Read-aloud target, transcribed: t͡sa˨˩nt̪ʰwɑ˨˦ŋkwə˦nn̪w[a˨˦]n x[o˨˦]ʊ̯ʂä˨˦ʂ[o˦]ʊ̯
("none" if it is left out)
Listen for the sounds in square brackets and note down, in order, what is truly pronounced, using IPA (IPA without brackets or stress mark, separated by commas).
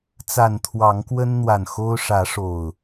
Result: a˨˩, o˦, o˨˩